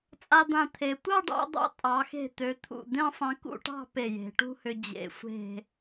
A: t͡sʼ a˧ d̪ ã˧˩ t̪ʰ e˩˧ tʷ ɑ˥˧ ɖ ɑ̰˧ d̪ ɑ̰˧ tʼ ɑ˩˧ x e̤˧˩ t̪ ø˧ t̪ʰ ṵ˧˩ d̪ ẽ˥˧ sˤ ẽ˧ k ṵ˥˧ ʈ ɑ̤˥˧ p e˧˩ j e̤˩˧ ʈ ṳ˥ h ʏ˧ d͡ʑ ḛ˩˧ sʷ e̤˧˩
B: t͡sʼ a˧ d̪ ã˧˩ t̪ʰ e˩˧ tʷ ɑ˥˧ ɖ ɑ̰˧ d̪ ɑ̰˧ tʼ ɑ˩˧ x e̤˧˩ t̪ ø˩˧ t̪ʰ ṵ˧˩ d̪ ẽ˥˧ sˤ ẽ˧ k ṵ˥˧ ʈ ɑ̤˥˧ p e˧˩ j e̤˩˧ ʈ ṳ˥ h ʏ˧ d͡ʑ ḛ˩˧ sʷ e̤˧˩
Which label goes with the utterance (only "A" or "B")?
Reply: B